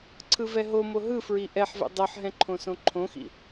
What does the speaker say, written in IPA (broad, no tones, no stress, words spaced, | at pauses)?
ǀʰɯvɛɦomo ɦɯfɹi ʔɛħvɛ̰ dˤɤħɦɛ̃ ǃʰõsõǃʰõxḭ